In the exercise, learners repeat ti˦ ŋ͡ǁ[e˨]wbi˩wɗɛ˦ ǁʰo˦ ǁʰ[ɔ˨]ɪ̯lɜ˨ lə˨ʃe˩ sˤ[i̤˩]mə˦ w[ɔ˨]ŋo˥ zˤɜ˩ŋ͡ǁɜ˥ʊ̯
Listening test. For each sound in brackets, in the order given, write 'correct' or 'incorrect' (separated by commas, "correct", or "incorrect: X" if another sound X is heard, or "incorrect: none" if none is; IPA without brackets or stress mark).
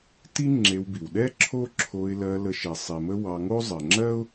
correct, incorrect: o˨, incorrect: i˩, incorrect: ɑ˨